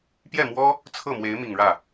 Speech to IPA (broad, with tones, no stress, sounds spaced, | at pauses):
p j ɛ˥˩ m w ɔ˥ | t͡sʰ ɤ˥˩ m w e˧˥ ɪ̯ m i˨˩ ŋ ɻ ä˥˩